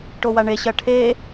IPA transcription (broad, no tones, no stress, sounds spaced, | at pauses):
ʈ o w a ɳ e ɕ ɐ ʈʰ e